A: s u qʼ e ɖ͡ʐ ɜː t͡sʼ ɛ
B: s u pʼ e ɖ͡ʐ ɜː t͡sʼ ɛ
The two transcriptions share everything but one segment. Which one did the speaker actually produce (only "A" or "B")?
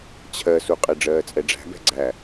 A